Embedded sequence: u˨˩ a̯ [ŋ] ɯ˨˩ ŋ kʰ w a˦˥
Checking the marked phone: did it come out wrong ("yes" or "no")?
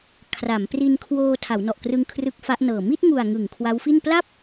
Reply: no